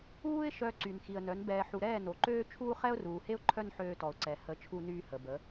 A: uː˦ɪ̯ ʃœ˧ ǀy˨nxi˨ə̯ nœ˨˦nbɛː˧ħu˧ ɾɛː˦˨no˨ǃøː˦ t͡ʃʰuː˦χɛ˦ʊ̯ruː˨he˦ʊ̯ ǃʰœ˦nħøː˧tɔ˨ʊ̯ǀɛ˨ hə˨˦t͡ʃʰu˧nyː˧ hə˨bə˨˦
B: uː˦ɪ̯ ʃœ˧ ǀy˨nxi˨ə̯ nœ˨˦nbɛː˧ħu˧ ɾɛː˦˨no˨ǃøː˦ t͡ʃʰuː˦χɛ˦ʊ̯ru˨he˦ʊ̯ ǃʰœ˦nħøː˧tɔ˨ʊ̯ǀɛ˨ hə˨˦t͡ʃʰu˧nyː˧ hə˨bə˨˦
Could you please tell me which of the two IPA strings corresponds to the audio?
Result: A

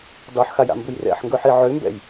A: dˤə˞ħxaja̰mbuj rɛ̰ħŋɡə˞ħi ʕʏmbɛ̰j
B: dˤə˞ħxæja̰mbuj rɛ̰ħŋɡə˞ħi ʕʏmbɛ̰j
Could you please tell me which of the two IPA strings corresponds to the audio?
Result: A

